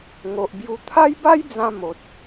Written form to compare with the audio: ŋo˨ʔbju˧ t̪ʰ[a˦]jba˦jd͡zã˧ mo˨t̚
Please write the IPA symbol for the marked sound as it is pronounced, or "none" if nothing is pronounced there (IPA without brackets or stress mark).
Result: a˦